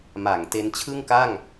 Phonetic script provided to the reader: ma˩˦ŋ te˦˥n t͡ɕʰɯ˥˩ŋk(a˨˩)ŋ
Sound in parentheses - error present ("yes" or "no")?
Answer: yes